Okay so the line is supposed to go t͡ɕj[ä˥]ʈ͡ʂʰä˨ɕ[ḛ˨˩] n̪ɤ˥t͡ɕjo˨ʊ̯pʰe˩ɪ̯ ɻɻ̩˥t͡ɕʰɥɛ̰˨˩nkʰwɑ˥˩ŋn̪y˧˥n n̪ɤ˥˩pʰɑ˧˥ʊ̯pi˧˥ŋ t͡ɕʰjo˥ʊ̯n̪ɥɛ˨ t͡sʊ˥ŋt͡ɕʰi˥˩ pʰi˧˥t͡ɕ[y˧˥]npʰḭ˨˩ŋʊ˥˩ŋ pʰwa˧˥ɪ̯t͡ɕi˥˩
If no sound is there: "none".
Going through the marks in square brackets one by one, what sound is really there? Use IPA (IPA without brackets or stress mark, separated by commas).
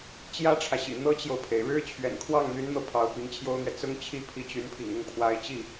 ä˥, ḭ˨˩, y˧˥